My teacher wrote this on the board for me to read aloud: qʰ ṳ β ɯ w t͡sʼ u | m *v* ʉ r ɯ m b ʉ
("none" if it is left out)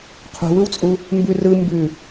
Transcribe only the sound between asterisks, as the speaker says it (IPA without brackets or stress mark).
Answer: b